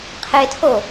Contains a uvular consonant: yes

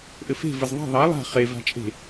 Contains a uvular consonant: yes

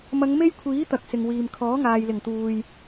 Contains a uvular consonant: no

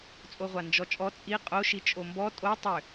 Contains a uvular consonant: yes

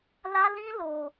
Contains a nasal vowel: yes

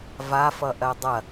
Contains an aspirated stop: no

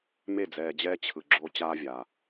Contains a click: yes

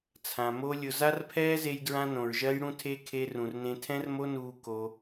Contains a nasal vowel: yes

